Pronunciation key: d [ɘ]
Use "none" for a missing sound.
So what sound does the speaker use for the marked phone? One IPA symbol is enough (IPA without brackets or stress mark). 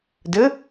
ɘ